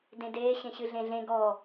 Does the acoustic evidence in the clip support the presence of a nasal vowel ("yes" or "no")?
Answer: yes